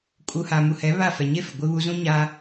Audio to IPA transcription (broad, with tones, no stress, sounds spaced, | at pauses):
kʼ u˨ h a˨ m u˨ h ɛ˨˦ β a˦˨ f ɛ˨ ɲ e˦ f ɪ˨ ɡʷ ɪ˦ β u˦ z ũ˦ ɲ a˦